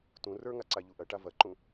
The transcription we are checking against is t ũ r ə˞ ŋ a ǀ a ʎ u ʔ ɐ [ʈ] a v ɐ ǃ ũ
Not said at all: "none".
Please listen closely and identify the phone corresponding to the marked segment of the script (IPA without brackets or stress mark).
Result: ʈ